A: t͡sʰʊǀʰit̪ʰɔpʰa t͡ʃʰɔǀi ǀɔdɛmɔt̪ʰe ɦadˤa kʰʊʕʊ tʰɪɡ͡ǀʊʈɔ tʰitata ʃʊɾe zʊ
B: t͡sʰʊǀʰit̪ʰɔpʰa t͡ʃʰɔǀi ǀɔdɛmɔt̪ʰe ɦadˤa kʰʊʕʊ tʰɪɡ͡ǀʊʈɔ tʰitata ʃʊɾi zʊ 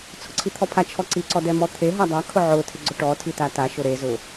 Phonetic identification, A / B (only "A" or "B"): A